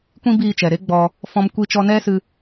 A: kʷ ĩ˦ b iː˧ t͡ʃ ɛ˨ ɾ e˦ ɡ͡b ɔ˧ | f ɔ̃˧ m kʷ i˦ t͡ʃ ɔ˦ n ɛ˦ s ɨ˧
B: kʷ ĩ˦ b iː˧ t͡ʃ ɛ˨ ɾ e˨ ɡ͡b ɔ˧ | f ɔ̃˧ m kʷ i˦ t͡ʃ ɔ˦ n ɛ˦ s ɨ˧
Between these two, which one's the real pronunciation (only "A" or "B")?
A